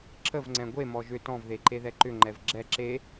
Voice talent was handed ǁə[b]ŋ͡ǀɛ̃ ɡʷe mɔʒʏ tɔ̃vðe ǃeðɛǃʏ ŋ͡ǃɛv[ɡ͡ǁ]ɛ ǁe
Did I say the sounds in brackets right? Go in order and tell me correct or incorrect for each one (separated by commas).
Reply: incorrect, correct